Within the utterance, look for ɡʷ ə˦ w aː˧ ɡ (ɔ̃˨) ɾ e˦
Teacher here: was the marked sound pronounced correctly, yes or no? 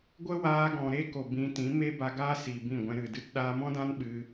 yes